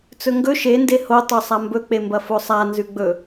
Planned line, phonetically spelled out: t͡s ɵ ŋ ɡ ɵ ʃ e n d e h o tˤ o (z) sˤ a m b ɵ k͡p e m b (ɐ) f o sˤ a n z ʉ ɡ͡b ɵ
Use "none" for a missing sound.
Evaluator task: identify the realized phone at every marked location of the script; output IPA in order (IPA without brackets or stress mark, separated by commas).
none, ɐ